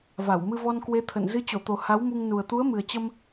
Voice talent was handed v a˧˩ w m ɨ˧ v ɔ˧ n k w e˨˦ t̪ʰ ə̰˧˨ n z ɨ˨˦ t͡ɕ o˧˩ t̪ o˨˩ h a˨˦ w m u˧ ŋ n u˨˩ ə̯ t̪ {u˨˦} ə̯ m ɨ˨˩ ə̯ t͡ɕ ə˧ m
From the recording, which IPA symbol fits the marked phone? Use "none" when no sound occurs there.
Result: u˨˦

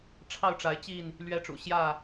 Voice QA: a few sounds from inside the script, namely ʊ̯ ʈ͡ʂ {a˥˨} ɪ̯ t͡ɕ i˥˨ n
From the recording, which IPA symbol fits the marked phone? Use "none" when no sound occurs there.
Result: a˨˦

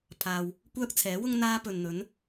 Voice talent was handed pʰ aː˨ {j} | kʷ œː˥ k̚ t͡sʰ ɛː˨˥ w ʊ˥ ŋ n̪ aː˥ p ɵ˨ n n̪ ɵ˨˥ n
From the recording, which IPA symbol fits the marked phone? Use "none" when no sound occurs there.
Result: w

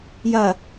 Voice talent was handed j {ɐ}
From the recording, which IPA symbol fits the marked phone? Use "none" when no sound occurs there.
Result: ɐ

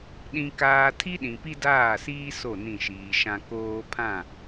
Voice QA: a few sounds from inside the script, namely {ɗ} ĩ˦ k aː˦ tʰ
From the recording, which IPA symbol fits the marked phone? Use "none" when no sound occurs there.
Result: ɗ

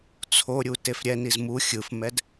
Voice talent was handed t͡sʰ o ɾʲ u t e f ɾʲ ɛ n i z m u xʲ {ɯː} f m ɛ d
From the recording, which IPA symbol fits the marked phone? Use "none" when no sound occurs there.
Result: ɯ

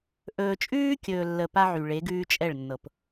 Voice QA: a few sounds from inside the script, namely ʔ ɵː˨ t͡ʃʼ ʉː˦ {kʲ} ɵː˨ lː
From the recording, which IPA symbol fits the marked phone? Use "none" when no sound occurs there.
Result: kʲ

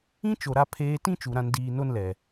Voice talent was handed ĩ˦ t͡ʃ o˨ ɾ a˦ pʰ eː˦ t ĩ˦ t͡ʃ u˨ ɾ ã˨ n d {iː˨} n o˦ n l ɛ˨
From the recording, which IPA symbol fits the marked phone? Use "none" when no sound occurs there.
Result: iː˨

